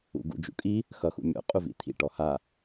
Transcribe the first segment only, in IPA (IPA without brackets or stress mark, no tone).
ṵ